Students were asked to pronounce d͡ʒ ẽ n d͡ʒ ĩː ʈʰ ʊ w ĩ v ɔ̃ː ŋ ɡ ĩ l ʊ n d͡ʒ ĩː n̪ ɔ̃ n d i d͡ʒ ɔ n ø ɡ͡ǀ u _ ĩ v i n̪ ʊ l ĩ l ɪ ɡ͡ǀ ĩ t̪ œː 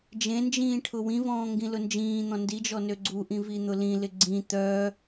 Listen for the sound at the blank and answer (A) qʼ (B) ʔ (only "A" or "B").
B